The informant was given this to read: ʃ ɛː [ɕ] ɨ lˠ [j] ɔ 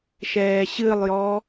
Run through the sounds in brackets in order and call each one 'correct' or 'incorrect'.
correct, correct

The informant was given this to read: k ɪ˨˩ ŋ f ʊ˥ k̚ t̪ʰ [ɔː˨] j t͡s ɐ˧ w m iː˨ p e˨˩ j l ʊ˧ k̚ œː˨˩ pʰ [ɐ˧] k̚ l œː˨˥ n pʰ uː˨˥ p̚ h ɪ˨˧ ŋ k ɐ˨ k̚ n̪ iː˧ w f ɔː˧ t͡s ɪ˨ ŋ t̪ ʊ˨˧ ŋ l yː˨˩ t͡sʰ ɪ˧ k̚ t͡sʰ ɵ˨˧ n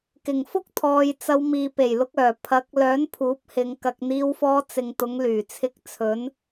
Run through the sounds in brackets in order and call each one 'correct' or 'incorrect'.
correct, incorrect

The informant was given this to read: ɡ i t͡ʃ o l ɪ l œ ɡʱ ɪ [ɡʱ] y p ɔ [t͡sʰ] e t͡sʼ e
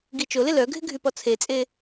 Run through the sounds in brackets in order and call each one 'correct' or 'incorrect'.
correct, correct

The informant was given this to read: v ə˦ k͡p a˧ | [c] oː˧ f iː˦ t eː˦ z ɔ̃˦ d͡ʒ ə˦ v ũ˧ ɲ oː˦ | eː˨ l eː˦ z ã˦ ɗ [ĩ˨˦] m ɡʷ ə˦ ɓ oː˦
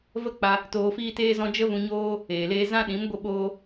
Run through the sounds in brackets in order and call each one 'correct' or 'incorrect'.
incorrect, correct

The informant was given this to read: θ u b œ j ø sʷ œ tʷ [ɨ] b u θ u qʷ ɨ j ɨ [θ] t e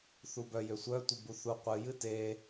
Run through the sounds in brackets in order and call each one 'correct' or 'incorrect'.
incorrect, incorrect

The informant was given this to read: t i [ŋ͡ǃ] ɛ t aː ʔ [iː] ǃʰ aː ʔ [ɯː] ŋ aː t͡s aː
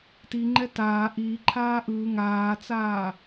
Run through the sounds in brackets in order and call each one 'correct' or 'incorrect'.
correct, correct, correct

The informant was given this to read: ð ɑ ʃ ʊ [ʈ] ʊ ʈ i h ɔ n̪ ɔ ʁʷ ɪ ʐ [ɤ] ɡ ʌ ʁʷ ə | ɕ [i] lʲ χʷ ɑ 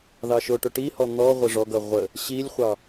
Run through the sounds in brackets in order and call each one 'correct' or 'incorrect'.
correct, incorrect, correct

